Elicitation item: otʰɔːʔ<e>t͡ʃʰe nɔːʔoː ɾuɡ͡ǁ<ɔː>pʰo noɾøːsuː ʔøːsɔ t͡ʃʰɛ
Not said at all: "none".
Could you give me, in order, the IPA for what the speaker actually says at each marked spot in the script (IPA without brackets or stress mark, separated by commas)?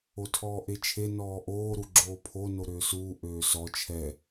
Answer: e, oː